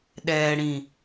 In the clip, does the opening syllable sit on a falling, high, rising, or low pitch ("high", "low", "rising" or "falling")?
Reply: low